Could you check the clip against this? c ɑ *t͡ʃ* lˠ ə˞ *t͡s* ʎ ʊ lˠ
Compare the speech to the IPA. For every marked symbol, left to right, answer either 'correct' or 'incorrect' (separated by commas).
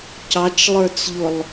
correct, correct